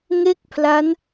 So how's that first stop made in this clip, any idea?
plain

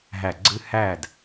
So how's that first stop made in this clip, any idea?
click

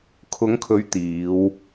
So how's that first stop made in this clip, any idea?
aspirated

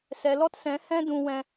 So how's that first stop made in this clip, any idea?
plain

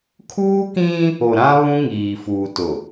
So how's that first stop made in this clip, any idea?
aspirated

